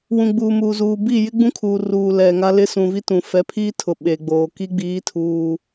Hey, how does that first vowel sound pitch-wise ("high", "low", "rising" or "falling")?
low